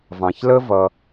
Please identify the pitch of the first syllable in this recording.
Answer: low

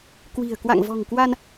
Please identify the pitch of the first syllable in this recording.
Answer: low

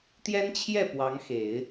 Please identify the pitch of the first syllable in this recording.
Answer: high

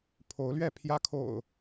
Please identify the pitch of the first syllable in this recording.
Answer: rising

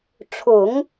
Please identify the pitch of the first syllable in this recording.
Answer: low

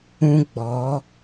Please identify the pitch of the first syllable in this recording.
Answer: high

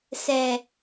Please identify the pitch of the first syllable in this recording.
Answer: low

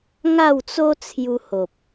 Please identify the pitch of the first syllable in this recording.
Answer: falling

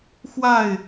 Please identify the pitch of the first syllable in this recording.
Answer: falling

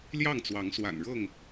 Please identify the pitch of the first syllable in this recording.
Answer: falling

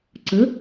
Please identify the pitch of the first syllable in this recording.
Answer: rising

